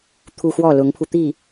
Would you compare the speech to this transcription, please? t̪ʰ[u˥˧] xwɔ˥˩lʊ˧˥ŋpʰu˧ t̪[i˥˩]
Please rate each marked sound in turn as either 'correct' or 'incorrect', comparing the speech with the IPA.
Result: correct, correct

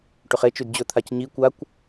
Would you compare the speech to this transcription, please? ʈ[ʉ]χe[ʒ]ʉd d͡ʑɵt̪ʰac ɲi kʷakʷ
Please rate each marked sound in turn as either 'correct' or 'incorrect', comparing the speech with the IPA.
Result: correct, incorrect: t͡ʃ

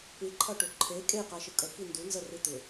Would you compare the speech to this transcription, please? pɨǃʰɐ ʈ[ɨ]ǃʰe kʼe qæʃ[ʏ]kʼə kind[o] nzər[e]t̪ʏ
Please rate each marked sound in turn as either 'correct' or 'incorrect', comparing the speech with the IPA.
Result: incorrect: ʏ, incorrect: ɨ, incorrect: u, incorrect: ɨ

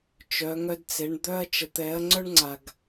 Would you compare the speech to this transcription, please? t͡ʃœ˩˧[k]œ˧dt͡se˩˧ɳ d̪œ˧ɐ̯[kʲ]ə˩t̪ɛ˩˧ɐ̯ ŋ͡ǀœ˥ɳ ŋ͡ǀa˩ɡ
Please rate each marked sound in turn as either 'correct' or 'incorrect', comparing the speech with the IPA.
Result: incorrect: ŋ, incorrect: t͡ʃ

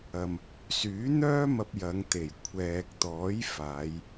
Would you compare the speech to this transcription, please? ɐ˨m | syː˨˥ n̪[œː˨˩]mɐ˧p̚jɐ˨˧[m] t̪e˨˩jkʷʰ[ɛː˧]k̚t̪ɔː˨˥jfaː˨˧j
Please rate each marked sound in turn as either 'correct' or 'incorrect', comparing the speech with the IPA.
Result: incorrect: œː˥, incorrect: ŋ, incorrect: ɛː˨

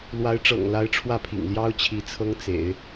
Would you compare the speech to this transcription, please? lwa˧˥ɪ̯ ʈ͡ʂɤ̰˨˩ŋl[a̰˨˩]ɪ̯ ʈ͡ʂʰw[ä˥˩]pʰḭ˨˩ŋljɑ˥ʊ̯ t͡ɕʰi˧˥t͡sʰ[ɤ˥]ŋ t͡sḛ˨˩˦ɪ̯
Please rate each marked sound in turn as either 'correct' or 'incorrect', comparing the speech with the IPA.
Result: incorrect: a˧˥, correct, correct

